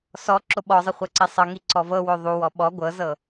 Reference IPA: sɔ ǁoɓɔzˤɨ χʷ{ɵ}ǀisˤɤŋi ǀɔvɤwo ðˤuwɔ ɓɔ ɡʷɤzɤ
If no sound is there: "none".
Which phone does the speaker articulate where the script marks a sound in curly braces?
ɤ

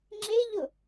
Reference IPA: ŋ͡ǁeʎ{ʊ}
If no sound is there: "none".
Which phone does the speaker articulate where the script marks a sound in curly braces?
ʊ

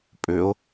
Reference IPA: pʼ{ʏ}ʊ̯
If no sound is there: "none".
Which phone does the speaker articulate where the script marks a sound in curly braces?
ʏ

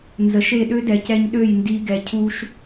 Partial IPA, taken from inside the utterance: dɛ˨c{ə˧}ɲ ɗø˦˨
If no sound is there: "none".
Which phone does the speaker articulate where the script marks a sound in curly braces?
ɛ˧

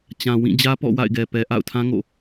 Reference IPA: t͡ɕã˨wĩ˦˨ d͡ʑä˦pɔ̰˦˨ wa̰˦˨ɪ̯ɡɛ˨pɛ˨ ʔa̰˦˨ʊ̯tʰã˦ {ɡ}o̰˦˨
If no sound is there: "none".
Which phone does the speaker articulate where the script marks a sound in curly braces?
ŋ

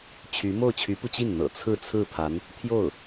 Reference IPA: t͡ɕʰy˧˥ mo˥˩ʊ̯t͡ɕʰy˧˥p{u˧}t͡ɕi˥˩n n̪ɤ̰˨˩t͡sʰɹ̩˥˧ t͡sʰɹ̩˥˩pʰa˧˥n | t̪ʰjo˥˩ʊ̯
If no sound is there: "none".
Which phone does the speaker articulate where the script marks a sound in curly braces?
u˧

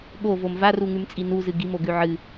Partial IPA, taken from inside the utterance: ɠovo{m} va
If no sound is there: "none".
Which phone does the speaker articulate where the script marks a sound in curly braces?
m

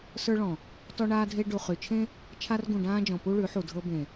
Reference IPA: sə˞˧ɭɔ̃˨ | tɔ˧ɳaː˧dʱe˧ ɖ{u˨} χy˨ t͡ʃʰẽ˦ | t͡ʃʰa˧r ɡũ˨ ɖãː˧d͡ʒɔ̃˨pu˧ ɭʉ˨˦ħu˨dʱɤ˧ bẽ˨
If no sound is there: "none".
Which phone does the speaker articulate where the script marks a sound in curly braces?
u˨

